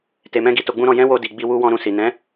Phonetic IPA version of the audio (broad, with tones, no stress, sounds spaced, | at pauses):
t e˨ m ɛ̃˧ ɡ i˧ t o˧ ɡ͡b ũ˦ ɾ ɔ̃˧ j ɛ̃˦ w o˧ d i˨ ɡ͡b i˧ w u˧ w ɔ̃˧ ɾ ũ˨ s i˨ n ɛ̃˨˦